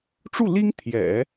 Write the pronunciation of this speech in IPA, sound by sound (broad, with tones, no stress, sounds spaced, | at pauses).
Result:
ʈ͡ʂ u˥˩ l i˥ ŋ t̪ʰ j ɛ̰˨˩˦